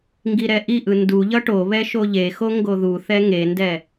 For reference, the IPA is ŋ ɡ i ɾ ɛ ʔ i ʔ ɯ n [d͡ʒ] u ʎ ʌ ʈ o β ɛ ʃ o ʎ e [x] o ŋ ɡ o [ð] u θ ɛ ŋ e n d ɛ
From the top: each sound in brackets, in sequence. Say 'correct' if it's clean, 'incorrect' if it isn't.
incorrect, correct, correct

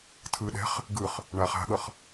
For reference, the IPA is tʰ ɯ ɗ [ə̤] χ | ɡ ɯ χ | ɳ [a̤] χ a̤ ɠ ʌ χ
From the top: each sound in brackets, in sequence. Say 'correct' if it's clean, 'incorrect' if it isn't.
incorrect, incorrect

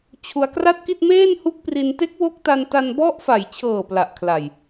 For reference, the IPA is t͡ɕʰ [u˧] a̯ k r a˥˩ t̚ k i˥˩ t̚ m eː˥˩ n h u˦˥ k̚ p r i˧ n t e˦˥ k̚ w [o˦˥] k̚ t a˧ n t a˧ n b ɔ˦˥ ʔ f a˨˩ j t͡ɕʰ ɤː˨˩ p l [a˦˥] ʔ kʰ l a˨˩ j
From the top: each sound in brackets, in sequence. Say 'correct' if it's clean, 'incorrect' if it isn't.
correct, correct, incorrect

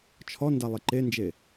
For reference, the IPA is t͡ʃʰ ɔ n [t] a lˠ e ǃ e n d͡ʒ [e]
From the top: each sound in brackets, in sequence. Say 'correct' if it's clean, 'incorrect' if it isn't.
incorrect, correct

